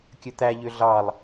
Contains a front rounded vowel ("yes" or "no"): yes